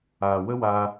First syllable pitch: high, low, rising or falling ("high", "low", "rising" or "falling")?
low